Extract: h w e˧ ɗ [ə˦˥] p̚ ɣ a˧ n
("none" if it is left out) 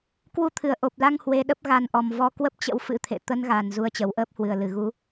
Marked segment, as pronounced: ə˦˥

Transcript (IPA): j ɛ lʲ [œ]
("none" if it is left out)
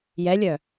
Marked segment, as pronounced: œ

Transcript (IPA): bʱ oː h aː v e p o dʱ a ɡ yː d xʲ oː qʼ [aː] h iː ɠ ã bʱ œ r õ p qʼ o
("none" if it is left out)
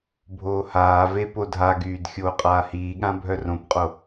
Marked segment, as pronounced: aː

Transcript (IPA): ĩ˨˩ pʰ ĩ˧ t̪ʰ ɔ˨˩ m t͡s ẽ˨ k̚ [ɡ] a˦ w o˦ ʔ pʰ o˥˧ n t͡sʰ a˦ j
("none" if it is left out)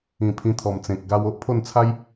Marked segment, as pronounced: ɡ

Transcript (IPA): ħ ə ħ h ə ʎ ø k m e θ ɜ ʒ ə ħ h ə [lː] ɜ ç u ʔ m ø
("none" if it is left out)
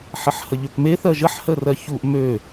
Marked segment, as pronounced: r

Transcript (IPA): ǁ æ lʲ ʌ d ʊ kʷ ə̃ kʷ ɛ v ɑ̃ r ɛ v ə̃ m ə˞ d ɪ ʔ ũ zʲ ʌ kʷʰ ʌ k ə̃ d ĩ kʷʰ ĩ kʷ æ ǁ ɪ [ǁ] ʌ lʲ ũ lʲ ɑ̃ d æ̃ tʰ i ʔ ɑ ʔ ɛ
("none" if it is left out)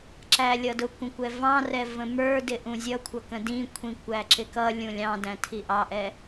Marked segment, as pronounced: k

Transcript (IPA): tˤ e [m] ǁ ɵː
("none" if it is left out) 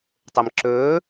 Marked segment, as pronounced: m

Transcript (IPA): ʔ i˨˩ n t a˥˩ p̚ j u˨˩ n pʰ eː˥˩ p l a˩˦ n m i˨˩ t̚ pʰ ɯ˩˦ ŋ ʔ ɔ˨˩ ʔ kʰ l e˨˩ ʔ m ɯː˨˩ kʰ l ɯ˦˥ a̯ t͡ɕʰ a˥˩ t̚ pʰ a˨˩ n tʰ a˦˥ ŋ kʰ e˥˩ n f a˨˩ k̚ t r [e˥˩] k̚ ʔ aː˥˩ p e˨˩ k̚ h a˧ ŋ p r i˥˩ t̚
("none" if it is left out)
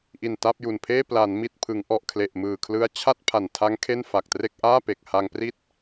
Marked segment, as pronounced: e˥˩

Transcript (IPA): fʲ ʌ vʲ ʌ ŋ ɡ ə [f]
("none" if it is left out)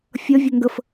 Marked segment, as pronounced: f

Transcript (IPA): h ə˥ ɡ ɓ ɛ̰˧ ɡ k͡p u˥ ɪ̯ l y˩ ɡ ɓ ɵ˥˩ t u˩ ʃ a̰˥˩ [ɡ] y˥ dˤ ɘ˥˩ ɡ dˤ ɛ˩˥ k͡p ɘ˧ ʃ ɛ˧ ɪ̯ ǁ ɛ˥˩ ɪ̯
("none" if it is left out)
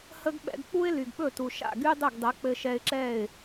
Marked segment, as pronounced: ɡ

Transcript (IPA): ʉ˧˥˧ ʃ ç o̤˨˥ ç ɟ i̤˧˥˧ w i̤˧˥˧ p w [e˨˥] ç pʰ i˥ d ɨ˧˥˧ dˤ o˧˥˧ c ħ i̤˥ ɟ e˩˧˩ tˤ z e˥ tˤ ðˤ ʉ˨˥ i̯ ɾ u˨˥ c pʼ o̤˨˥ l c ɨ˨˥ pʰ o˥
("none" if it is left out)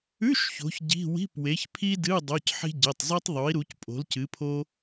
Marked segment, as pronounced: e˨˥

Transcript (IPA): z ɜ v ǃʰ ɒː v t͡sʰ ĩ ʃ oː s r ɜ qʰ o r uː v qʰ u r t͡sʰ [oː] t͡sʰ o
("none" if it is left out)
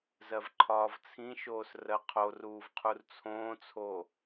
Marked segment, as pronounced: õː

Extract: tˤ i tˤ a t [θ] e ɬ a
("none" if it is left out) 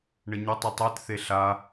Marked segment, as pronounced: θ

